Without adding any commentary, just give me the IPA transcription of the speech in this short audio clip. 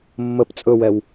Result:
mːəp t͡sʼɵwɛw

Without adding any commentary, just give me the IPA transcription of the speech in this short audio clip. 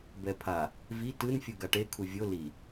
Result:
bɛpʰa | vi tɯn fʲuɡaʈe kʰuvʲo li

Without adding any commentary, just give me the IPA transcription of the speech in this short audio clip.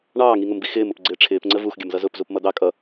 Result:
ɳɑːŋiŋʊmbi xɪːmʊpɡ͡ǀɪː ʈ͡ʂʰɪːpŋ͡ǀə vuxɡʲʌmzʌ zʊpzupmʌ d̪ɑ kʼʌ

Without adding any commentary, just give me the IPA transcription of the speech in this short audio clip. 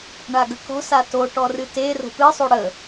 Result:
ɳaɡəkɔ̤sa to ʈɔrɨte ro̤pɨsˤo ɽə

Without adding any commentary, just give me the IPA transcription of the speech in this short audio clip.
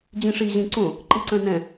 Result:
d͡ʑĩʂi ʑĩǀõ | ǃiǀə̃nɛ̃

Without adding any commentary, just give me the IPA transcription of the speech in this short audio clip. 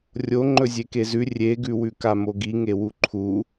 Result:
rʲo ŋ͡ǃɵzʲekezʉ rʲeɡʉ wʉkamoɡi ŋewuǃʰu

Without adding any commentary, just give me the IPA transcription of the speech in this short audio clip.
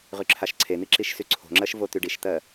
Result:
ʁyǁʰaʃǀʰen̪i ǁiʃsyǀʰo̤ŋ͡ǁɜʃ vot̪yɖiʃt̪ɜ

